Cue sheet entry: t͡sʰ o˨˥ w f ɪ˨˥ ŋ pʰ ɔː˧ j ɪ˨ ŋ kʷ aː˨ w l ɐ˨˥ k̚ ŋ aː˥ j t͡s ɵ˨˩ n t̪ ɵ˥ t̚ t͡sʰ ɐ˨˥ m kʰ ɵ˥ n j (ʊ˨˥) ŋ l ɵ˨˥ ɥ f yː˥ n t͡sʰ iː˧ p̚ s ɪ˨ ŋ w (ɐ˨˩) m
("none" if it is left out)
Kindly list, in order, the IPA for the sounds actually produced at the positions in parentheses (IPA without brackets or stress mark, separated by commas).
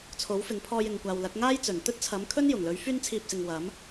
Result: ʊ˨˩, ɐ˨˥